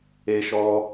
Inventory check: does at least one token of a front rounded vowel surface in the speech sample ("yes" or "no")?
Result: no